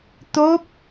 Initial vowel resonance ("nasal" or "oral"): oral